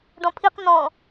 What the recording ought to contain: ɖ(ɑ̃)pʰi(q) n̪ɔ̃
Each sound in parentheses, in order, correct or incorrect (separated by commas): incorrect, correct